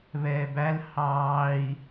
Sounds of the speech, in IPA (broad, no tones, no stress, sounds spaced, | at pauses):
β ɛː b æ l h ɑː i̯